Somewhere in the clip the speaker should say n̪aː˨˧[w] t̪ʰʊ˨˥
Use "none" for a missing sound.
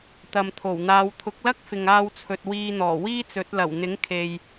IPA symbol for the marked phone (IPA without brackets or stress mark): w